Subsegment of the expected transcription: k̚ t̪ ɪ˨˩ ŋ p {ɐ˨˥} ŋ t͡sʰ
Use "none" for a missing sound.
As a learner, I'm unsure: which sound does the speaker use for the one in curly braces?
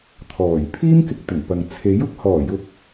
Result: ɐ˨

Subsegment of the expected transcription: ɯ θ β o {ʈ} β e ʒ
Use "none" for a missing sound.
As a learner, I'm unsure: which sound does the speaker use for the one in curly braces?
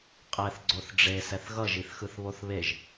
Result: θ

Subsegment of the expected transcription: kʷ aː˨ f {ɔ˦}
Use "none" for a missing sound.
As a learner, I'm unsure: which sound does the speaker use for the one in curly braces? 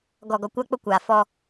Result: ɔ˦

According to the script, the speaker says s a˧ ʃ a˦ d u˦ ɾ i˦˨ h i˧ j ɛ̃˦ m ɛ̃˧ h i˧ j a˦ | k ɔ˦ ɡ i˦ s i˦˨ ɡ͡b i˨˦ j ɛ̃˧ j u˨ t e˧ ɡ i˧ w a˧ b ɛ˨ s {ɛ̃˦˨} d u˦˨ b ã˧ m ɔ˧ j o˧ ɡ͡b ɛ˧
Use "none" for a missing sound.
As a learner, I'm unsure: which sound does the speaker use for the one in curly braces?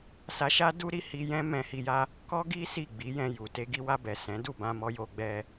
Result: ɛ̃˨˦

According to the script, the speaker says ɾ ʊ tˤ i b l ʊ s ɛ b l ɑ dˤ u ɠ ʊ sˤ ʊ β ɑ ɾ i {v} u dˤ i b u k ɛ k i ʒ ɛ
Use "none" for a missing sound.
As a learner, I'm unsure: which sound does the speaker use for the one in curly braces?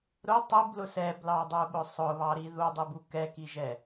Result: ð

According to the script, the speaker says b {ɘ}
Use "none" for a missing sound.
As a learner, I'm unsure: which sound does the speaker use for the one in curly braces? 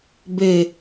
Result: ɘ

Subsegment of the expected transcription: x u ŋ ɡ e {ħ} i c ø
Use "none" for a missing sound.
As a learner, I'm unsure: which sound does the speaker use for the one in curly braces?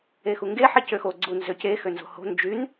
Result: ħ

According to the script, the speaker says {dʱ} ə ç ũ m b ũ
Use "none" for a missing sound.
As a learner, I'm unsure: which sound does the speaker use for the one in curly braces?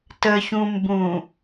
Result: t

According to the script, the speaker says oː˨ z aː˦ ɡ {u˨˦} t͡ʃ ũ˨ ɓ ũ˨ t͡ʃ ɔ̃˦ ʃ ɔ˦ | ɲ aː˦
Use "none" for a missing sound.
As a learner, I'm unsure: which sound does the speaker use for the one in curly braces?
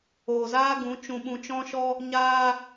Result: ũ˨˦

